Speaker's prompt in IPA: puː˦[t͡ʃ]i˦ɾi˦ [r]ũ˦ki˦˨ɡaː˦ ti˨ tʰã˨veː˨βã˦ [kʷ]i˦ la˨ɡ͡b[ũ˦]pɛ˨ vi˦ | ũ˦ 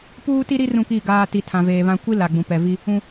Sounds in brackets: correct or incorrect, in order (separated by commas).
incorrect, correct, correct, incorrect